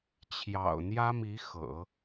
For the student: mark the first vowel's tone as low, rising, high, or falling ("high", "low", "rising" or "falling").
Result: low